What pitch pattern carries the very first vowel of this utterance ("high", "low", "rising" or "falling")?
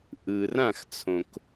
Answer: low